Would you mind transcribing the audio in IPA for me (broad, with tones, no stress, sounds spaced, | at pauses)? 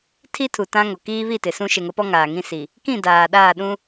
tʰ i˦ tʰ u˨ t ã˦ ŋ o˨ k iː˦ β i˦˨ t ɪ˨ s ũ˦ ʃ e˨ ŋ ʊ˨˦ p ɔ˦ ŋ aː˨ ŋ ĩ˦ s i˨ | k ĩ˦˨ d aː˨ ɗ aː˦˨ ɗ ũ˦